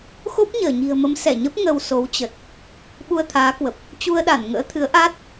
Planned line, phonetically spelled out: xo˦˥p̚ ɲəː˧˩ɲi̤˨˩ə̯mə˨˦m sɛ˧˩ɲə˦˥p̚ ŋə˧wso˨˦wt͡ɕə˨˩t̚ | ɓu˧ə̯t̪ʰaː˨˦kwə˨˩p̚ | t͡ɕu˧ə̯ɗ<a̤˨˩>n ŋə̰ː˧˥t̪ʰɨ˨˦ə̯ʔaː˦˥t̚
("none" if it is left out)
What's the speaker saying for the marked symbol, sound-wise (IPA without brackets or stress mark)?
a˧˩